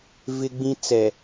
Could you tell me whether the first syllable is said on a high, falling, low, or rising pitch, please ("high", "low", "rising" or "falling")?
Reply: high